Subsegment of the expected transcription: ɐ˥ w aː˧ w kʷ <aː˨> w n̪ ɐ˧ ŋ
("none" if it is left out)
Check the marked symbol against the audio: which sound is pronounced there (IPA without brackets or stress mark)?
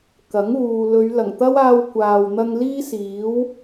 aː˨